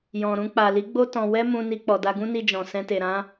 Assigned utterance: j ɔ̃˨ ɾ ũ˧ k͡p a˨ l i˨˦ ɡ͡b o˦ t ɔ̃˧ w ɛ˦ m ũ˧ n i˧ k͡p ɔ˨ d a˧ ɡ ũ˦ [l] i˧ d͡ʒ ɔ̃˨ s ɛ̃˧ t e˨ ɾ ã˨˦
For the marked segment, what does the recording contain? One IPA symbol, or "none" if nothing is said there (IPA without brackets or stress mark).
n